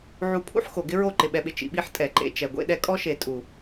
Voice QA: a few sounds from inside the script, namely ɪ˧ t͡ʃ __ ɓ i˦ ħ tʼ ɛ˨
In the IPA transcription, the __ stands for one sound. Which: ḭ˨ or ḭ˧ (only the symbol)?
ḭ˨